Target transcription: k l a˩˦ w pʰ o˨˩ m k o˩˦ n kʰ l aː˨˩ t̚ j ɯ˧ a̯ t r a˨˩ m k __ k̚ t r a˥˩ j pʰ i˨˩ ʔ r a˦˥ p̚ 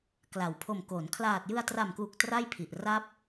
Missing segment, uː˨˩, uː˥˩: uː˨˩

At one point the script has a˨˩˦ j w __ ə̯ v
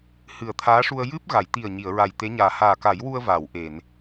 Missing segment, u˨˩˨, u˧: u˧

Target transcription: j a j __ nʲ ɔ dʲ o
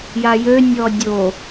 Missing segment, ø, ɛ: ø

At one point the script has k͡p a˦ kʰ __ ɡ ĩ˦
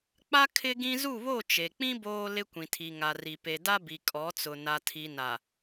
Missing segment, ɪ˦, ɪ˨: ɪ˦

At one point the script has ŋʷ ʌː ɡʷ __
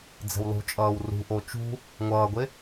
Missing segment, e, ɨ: e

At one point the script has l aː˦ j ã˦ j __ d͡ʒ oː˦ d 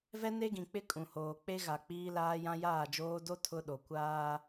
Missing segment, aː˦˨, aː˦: aː˦˨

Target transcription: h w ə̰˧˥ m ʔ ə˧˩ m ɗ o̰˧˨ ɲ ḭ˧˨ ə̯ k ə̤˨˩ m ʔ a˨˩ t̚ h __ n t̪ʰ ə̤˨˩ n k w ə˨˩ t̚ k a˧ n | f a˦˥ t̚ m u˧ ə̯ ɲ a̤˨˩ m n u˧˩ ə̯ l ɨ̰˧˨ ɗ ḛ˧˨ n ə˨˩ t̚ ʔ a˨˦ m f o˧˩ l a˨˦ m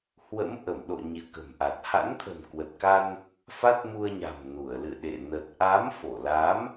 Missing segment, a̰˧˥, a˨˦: a̰˧˥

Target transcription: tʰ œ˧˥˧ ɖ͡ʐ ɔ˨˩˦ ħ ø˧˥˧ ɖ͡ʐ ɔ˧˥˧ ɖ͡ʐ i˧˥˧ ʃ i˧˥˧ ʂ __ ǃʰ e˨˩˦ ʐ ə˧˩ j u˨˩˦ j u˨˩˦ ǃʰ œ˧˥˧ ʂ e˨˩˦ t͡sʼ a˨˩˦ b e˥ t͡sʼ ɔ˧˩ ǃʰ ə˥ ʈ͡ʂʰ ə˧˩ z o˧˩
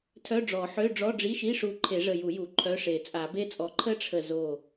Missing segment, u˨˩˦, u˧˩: u˧˩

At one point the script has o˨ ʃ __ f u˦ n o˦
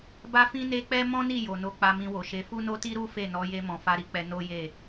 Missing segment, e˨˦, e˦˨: e˨˦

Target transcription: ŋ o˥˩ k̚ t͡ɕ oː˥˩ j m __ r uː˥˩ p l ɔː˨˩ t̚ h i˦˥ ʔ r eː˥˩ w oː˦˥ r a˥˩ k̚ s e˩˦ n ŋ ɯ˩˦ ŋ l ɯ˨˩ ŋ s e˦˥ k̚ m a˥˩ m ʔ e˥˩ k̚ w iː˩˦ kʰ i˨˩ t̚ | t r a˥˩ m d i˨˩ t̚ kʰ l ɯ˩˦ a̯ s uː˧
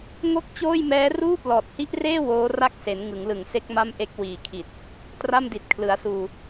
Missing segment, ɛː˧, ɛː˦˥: ɛː˦˥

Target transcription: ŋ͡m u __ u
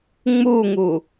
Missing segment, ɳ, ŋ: ŋ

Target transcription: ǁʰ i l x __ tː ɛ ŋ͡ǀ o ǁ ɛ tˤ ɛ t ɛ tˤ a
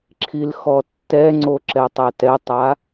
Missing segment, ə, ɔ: ɔ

